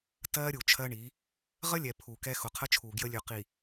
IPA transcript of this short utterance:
t ɜː˦ ɾʲ u˨ t͡ʃʰ ɜ˦ ɳ i˨˦ | ʁ ə˦ lʲ ɛ˨ pʰ u˨ k ɛ˦ x ʊ˨ qʰ ə˦ t͡ʃʰ uː˨ ɡ j ə˦ lʲ ʉ˨ q i˨

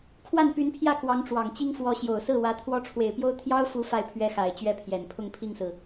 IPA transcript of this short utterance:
kʰ w a˥˩ n p y˧˥ n pʰ j ä˥˩ k w ɑ˧˥ ŋ ʈ͡ʂ w ɑ˨˩ ŋ t͡ɕ i˥ ŋ f w ɔ˧˥ ɕ j o˨˩ ʊ̯ s ɹ̩˥˩ w ä˧˥ t̪ʰ w ɔ˥ ʈ͡ʂʰ w e˨˩ ɪ̯ p j o˥ ʊ̯ t̪ʰ j ɑ˥ ʊ̯ f u˧˥ f a˥˩ ɪ̯ pʰ ɥ ɛ˥ x a˨˩ ɪ̯ t͡ɕ ɥ ɛ˥˩ pʰ j ɛ˨˩ n pʰ ʊ˥˧ ŋ pʰ i˥˩ ŋ s ɹ̩˩

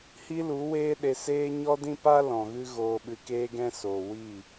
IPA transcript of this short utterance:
h i˧ l u˨˦ w eː˦ ɗ e˧ s eː˦ ɲ ɔ˦ d ĩ˦ p a˦ l ɔ̃˨ ɣ ɨ˦ ɣ oː˧ ɓ ɨ˧ k eː˦ ɡ ɛ̃˦ s oː˨ w i˦˨

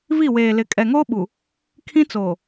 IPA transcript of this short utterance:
v i˦˨ w eː˨ l ɪ˨˦ kʼ ɛ˨ ŋ oː˦ ɓ u˨ | kʰ ĩ˦ t͡s oː˨

